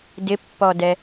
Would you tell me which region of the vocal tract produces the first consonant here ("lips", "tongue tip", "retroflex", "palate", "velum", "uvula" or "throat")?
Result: tongue tip